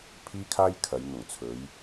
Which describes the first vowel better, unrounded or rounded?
unrounded